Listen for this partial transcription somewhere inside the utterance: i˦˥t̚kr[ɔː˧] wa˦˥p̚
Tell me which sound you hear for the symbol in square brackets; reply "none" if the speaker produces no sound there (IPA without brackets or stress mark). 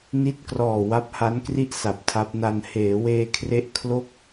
ɔː˨˩